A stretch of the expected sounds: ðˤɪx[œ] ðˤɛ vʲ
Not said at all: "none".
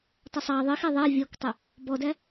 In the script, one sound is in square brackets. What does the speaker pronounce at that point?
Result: ɛ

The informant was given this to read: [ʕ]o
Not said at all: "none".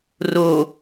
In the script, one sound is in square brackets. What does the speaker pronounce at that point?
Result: r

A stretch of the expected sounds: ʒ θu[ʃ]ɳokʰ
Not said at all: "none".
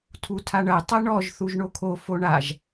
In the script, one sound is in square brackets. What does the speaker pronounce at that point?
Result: ʒ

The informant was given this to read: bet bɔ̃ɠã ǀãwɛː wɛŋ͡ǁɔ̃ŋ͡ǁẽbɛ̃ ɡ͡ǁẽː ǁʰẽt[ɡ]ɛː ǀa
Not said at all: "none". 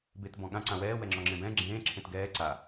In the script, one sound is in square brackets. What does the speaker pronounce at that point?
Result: ɡ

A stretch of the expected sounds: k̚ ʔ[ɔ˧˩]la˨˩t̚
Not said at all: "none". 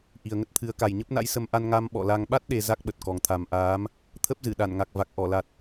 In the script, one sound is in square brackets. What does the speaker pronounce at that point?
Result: ɔ˧˩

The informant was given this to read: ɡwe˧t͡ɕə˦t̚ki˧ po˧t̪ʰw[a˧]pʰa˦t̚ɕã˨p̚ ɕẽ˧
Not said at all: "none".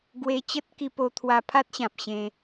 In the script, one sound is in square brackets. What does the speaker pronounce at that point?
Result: a˧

